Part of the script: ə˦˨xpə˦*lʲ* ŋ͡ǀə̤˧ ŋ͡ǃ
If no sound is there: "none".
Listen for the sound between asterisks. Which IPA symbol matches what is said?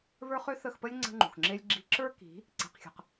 lʲ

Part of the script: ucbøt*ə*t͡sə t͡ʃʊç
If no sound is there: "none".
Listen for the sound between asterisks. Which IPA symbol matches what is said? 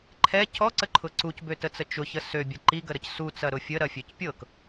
ə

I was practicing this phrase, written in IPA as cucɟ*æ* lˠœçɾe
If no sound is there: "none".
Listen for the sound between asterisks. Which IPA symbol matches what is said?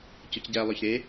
æ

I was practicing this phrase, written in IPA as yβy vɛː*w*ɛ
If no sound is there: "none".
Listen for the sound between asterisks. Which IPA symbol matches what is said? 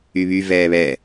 β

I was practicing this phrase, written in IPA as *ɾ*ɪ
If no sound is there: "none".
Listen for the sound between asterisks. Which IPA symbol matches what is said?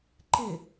ǃ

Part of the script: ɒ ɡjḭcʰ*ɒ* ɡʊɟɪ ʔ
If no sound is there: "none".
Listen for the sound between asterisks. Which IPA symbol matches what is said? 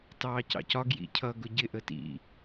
ʌ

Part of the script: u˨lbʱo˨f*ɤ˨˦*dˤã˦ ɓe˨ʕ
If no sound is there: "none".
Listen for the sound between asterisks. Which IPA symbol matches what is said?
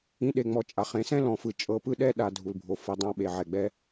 ɤ˨˦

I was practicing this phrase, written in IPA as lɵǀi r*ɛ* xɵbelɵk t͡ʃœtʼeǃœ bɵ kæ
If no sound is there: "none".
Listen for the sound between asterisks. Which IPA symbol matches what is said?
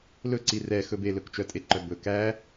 ɛ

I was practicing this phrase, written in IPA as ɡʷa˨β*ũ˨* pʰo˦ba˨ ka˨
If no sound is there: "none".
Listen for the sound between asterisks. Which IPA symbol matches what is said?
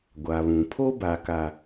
ũ˨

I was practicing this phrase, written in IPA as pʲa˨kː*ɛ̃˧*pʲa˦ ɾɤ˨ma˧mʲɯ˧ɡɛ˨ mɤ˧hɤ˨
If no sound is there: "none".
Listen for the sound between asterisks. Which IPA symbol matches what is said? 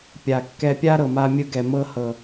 ɛ˧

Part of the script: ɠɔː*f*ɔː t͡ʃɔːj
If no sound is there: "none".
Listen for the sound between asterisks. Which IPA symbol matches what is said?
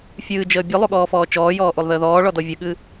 f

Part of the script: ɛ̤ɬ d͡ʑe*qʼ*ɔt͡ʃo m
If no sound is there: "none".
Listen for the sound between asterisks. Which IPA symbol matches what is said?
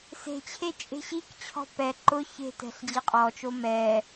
qʼ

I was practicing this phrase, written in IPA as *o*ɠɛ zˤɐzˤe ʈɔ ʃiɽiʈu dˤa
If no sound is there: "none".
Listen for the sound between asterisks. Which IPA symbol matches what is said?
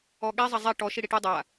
ɔ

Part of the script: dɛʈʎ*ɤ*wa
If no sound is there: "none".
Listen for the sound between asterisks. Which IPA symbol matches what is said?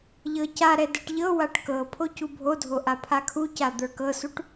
ɤ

